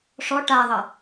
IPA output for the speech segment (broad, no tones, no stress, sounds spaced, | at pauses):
ʂ ɔ ʈ a ðˤ ʌ